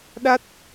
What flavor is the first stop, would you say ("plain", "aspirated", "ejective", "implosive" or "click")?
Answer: implosive